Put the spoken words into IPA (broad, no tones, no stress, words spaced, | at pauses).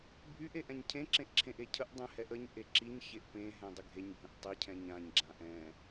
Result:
bʱyʔ eʔɛ̃ɲcʰẽ ǁẽʔǁʰẽʔecʰəʔ dˤɛ̃hɛʔəɲ ʔeǁiɲ çeʔpẽ ɦɛ̃dˤəɡʱeɲ bʱə̃ʔtˤi cʰɛ̃ɲãɲ ɡ͡ǁãʔɛ̃